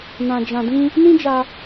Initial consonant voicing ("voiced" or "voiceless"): voiced